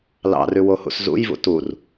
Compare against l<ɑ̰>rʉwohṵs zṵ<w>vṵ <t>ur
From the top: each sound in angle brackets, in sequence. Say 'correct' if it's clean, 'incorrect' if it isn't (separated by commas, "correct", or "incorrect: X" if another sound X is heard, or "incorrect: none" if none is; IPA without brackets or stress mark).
correct, incorrect: j, correct